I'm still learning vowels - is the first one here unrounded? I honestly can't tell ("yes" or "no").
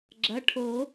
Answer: yes